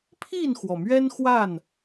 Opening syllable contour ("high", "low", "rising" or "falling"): falling